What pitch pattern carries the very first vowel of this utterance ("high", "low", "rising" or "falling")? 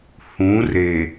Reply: rising